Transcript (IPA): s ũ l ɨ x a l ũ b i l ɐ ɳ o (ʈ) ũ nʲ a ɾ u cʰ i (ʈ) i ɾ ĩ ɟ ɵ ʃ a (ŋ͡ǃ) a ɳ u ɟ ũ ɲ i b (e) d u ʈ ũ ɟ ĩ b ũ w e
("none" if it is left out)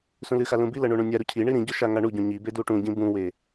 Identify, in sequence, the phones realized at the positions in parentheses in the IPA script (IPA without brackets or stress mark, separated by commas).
ɳ, ɳ, ŋ, e